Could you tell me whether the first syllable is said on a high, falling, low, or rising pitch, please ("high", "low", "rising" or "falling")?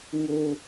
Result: high